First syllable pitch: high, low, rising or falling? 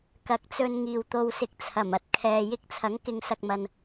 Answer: rising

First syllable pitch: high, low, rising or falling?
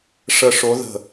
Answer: falling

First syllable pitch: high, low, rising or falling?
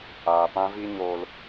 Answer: low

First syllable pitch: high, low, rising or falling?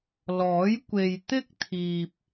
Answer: rising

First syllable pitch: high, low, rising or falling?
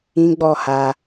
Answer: high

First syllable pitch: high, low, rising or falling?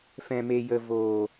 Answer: low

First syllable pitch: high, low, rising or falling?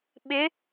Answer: rising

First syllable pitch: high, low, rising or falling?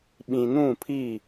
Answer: low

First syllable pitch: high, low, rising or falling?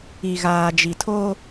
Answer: low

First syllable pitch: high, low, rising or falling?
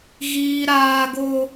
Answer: high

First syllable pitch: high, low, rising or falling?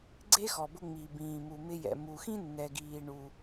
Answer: high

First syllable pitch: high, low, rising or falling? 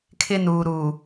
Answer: high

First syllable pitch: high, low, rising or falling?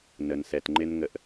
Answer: low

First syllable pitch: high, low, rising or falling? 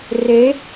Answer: rising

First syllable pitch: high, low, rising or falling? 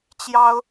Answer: high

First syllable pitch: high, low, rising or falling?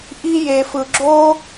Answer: high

